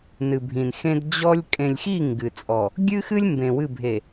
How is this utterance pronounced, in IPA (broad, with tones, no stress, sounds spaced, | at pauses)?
n ɨ˨ bʱ ĩ˨ n x ẽ˦ d d͡ʑ ɔ˦ lʲ kʼ ẽ˨ lʲ x i˦˨ ŋ ɡ ɨ˨ t͡sʼ ɔ˨ | ɡʲ ɨ˦ x ɨ˦ lʲ m b ẽ˨ w ɨ˦˨ bʱ e˨